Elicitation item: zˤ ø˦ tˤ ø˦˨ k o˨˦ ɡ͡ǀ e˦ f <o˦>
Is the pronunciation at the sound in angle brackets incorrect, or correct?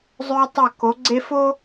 correct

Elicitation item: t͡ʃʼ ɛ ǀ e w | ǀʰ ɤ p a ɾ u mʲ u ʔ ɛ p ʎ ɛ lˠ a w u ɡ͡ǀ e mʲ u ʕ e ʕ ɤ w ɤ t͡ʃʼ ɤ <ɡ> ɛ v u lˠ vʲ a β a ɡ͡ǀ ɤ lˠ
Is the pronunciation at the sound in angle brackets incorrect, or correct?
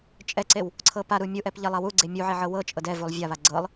incorrect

